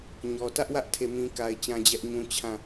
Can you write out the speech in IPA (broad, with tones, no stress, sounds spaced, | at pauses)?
ɲ ɔ˨ t ä˦ ʔ w ä˦ ʔ tʰ e˦˨ m ĩ˦ k a˦ ɪ̯ t͡ɕ ã˦ d͡ʑ ɛ˦ ʔ ɲ ũ˦ t͡ɕʰ ã˦˨